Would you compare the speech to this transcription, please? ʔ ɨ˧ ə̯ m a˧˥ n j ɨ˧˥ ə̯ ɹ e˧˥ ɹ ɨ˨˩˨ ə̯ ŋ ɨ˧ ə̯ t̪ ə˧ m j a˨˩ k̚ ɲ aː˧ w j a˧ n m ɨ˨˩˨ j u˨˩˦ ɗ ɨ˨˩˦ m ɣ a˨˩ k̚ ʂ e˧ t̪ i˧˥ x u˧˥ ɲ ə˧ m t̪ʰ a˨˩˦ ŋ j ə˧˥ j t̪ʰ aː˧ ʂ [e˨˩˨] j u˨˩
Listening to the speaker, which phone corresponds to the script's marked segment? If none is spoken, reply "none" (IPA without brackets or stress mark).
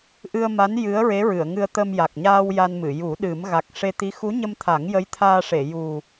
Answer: e˨˩˨